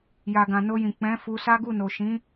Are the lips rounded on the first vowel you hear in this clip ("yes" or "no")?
no